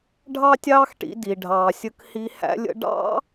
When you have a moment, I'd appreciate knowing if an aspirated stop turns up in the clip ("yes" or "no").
no